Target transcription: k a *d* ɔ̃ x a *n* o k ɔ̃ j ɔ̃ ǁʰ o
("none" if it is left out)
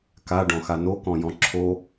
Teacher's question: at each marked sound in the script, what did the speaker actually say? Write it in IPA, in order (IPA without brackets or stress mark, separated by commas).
ɖ, n